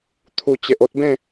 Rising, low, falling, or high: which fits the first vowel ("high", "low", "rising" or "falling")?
low